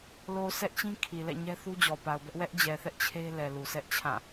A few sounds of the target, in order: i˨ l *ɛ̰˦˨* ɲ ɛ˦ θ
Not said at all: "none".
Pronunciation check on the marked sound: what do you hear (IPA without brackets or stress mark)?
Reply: ɛ̰˦˨